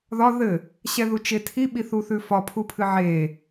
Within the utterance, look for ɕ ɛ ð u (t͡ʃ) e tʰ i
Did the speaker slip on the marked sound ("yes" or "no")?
no